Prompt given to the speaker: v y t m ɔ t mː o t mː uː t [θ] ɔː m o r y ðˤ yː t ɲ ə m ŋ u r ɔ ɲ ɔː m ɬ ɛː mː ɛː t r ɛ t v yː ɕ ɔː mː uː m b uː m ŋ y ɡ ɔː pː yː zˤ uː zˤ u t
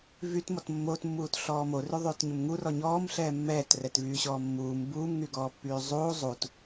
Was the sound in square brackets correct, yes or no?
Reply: no